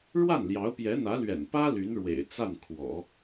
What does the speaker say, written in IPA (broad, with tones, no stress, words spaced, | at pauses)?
ɻwa˥˩nljɑ˧˥ʊ̯pjɛ˧˥ n̪ä˧˥lɥɛ̰˨˩npä˥ ly˧˥nɻwḛ˨˩ɪ̯ t͡sa˥˩nkʰwɔ̰˨˩˦